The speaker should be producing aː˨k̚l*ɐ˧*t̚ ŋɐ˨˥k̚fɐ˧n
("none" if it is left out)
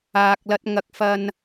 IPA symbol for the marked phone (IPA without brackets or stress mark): ɐ˧